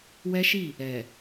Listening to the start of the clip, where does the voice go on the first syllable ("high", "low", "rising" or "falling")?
high